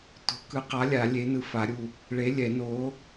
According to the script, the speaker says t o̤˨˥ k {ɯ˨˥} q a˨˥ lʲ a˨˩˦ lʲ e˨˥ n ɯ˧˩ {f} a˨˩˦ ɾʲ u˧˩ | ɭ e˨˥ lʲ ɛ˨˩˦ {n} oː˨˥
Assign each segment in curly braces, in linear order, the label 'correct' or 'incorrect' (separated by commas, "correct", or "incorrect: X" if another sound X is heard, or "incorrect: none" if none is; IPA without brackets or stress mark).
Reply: correct, correct, correct